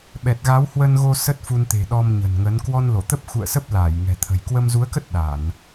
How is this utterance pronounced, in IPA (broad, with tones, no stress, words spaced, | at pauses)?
ɓɛ˨˩t̚ɣa˨˦whwə˧nɣo˧ sə˦˥t̚fu˧nt̪e̤˨˩ ɗɔ˧mɲə̤˨˩n ŋə˨˦n kwɔ˧nlo˧˩t̪ə˦˥p̚ xṵ˧˨ə̯ sə˦˥p̚laː˧˩j ŋɛ̤˨˩t̪ʰə̤˨˩j kwə˧mzu˨˦ə̯kə˦˥t̚ ɗa˧˩˨n